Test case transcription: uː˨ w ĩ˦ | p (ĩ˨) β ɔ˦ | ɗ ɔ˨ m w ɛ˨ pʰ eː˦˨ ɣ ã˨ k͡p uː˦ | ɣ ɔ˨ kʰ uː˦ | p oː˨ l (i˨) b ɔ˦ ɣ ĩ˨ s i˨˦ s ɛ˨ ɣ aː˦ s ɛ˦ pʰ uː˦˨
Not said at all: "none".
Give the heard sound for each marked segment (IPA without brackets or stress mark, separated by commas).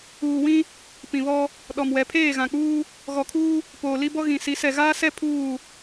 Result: ĩ˨, i˦